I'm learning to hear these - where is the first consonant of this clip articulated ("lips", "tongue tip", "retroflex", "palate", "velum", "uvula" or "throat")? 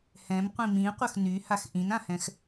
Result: throat